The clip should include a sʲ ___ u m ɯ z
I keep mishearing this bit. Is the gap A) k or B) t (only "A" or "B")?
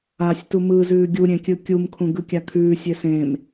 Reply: B